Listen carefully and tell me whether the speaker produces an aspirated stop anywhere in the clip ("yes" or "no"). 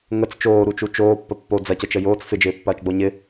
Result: no